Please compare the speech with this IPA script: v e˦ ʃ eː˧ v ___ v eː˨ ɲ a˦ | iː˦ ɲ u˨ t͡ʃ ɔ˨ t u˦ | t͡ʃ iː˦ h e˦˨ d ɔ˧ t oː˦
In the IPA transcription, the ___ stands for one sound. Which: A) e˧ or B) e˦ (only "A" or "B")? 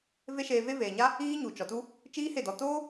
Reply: B